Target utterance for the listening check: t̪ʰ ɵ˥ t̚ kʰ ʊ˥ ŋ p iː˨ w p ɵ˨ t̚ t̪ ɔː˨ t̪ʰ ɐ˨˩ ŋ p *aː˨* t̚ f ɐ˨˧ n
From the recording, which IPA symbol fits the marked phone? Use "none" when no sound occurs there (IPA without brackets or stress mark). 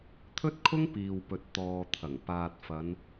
aː˨